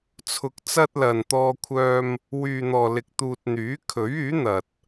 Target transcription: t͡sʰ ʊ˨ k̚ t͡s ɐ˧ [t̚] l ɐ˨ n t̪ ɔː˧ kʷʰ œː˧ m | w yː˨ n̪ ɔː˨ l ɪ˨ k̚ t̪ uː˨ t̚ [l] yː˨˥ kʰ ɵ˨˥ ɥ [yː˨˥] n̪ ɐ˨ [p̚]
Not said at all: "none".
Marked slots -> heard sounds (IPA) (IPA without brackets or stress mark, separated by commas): t̚, n̪, yː˨˥, t̚